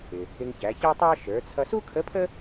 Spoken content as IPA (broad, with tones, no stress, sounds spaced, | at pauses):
ɪ˩ | ɪ˧ ŋ ç æ˩˧ ç ɑ˥ tˤ ɑ˥ ʃ ə˞˩˧ t͡sʰ ʌ˧ s u˥ kʰ ə˧˥ pʰ ə˥